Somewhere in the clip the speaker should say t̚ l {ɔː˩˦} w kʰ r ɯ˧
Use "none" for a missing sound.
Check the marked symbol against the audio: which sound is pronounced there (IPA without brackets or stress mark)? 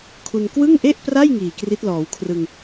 ɔː˩˦